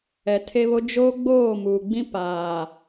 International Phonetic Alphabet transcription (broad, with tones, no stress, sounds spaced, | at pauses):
ɛ˨ tʰ e˦ β o˦ d͡ʒ oː˦ ɡ͡b oː˦˨ m uː˨ ɡ͡b ĩ˦ p aː˨